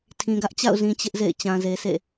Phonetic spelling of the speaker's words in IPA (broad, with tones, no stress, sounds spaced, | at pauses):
tʰ ĩ˨ ɡ ä˦ ʔ t͡ɕ a̰˦˨ ʊ̯ z ĩ˦ t͡ɕ ɪ˦ ʔ z ḛ˦˨ ɪ̯ t͡ɕ ã˨ z e˨ s ḛ˦˨